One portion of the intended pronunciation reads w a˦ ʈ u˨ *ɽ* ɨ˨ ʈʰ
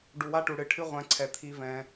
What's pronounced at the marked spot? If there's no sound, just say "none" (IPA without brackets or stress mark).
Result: ɽ